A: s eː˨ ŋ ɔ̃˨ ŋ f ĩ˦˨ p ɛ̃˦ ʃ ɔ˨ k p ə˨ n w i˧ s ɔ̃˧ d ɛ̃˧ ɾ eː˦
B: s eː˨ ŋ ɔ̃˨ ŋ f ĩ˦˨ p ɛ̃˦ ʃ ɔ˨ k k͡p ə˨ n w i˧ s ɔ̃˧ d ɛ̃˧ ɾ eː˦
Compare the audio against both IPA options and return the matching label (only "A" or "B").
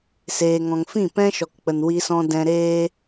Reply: B